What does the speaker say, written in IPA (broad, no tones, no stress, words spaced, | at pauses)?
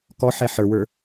kɔ ħɛħə˞wə˞